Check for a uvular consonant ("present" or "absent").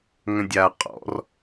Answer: present